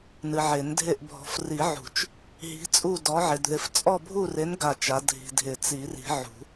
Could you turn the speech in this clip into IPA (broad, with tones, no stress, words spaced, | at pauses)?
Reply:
nɨ˨ʕe˨˩˦ndʱe˦˨ʔ bʱɔ̤˨f ri˨˩˦ʕṳ˨˩˦t͡ʃ | ɦi̤˨˥t͡sʼu˦˨ dɔ˨˥ʕɪ˨dðɪ˨˥f t͡sʼɔ˦˨bʱu˦˨re˨˥n ɡa˦˨t͡ʃa˨˥ dʱi̤˨dʱɪ˨˩˦t͡si˨˩˦ri̤˨˩˦ ʕṳ˨˩˦